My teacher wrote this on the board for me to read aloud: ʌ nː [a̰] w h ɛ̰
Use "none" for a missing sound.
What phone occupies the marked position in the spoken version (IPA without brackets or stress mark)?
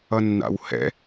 a̰